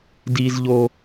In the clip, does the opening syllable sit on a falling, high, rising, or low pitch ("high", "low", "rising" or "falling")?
high